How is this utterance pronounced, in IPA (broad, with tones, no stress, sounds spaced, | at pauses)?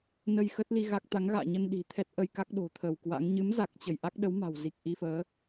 n ə˧ j x əː˦˥ t̚ l i˧ ɣ a˦˥ k̚ t̪ a˨˦ ŋ ɣ a̰ː˧˨ ɲ ə˧ n ɗ i̤˨˩ t̪ʰ ɛ˦˥ t̚ ʔ ə˧ j k a˦˥ k̚ ɗ o̤˨˩ t̪ʰ ə˧˩ w k w a̰˧˥ ŋ ɲ ɨ˨˦ m z a˨˩ k̚ t͡ɕ ə˧˩ j ʔ a˦˥ k̚ ɗ ə˨˦ w m a̤˨˩ w z i˨˩ k̚ ʔ i˧ f əː˨˦